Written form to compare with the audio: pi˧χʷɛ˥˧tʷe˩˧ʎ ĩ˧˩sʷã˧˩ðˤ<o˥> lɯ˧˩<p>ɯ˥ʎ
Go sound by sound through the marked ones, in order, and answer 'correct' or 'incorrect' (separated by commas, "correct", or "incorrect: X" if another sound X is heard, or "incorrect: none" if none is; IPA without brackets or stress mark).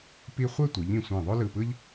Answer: correct, correct